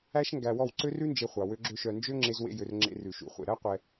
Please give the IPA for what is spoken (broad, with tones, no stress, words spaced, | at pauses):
æ˦ʃŋɡæ˧wɔ˦˨w ǀø˦rʉ˦nd͡ʒe˧χʷɑ˨ wø˦ɡ͡ǁø˦ʃœ˧ nd͡ʒø˦ŋ͡ǁe˧zwḛ˧jø˨r ŋ͡ǁḛ˧rʉ˨ʃṵ˨ χʷḛ˨ ɾæ˦qʷɛ˧